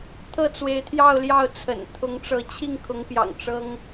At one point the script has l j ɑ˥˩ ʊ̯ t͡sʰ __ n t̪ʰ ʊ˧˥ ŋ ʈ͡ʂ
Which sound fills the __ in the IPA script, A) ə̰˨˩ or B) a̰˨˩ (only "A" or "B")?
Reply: A